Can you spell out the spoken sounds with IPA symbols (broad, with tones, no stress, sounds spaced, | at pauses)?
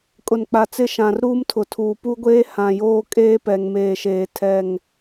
kʼ ʊ˨ n k͡p a˨ t͡s ɪ˦˨ ʃ ã˨ r ɾ uː˦ m tʰ ʊ˨ tʰ uː˨ p u˦ ɡʷ eː˦ h ã˨ j oː˦ kʼ eː˦ p ɛ˨ ŋ m eː˨ ʃ eː˨ tʰ ɛ˦˨ ŋ